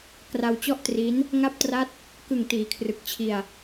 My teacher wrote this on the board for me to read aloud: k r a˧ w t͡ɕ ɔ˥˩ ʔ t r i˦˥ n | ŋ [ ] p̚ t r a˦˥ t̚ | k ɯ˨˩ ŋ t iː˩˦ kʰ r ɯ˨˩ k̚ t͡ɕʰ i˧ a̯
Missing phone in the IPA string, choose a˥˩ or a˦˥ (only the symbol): a˦˥